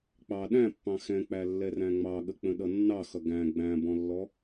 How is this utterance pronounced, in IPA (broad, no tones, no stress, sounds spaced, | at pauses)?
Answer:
k͡p ɑ ɗ æ̃ pː ɑ̃ x ɛ̃ k͡p æ lː ɛ r æ̃ ŋ͡m ɑ ɠ ə k͡p ə̃ ɗ ʌ nː ɑ x ʌ ɡ æ̃ ɡ͡b æ̃ b ɔ̃ lː ɔ